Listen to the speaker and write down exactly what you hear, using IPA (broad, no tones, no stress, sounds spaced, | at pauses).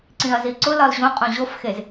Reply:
ǀ ĩ ɐ̯ z i ǀ ʊ l ɒ l ʑ õ qʼ õ ʑ o f x e z